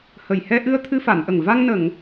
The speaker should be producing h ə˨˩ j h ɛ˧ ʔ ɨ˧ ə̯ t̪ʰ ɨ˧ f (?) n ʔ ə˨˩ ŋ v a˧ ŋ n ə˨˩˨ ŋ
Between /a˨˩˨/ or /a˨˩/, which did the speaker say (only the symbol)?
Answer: a˨˩˨